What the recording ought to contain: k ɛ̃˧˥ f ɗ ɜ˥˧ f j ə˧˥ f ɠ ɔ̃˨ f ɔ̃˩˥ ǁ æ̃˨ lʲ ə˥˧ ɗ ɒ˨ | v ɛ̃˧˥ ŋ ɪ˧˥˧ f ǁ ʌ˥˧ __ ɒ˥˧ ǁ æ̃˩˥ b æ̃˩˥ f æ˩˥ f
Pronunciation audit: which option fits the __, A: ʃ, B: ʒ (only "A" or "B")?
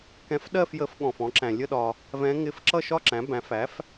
A